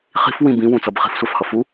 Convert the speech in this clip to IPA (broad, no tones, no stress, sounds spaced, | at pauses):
χ i̤ f w ĩ b ĩ w ũ t͡s ʌ b χ i̤ f sʷ a f h ʌ f u